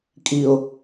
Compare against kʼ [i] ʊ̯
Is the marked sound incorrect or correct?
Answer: correct